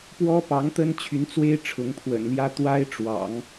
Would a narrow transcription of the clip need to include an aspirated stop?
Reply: yes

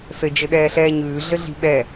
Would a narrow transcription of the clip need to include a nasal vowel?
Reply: no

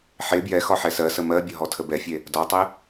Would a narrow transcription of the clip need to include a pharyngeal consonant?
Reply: yes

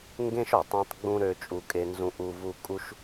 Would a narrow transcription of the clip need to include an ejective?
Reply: yes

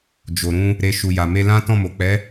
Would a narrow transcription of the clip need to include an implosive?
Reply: no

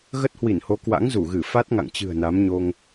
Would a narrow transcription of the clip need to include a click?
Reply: no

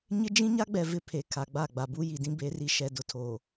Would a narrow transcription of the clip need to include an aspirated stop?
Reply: yes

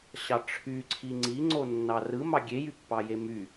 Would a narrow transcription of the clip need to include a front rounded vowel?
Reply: yes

